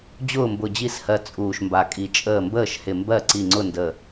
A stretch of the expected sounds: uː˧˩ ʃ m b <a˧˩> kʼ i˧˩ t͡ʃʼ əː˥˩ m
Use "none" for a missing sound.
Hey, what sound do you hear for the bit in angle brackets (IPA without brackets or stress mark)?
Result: a˧˩